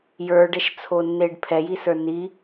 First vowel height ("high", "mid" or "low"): mid